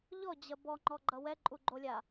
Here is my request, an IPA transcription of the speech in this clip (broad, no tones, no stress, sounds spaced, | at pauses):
ʎ ɔ d͡ʑ ɐ b ɔ ŋ͡ǃ ɔ ɡ͡ǃ ʌ w ɛ ǃʼ u ɡ͡ǃ o lʲ a